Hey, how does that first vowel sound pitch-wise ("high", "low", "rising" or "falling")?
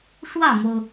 falling